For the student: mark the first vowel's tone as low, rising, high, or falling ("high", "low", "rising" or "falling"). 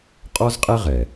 high